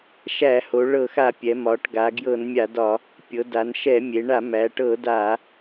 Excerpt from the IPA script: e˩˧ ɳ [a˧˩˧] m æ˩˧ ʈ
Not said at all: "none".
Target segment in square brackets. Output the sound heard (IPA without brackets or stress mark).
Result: a˧˩˧